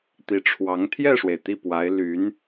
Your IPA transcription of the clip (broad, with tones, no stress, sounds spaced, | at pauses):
t̪ i˧˥ ʈ͡ʂʰ w ɑ˧˥ ŋ t̪ʰ j ɛ˥˩ ʂ w e˩ ɪ̯ t̪ i˥˩ p w a˧˥ ɪ̯ l y˧˥ n